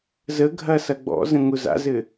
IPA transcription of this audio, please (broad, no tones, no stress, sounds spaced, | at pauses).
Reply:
z ə ɡʱ ɐ s ɐ ɡ͡b ɔ̰ z ə̃ ŋ ʊ z a̰ z ɘ